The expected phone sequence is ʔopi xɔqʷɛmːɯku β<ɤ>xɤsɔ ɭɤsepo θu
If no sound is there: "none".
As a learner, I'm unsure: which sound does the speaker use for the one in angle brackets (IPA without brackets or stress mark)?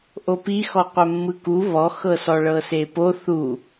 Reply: ɔ